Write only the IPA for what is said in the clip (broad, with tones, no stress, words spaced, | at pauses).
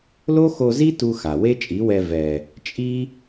lo˦xo˧zi˦ tu˦xa˨ we˦t͡ʃʼi˨˦wɛ˧ vɛ˨ | t͡ʃʼi˦